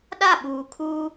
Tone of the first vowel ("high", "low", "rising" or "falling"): falling